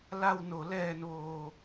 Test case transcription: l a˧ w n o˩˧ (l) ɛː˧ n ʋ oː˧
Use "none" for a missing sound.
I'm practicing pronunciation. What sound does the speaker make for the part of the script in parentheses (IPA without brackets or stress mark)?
l